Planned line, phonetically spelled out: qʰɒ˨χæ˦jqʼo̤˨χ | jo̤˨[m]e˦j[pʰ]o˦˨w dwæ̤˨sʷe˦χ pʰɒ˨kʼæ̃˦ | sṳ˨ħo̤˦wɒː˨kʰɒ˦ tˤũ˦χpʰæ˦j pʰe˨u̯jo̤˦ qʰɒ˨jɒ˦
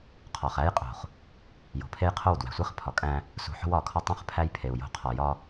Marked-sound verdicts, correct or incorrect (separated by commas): incorrect, incorrect